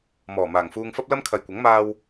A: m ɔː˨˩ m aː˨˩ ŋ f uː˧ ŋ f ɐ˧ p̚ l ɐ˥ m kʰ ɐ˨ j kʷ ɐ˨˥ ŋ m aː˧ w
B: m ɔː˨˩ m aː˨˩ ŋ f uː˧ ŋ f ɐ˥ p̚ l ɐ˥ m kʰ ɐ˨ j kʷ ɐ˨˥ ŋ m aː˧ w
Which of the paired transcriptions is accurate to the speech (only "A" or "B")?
B